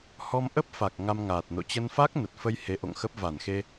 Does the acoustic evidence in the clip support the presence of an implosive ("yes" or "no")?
no